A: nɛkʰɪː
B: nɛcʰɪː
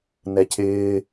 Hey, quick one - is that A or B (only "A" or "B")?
B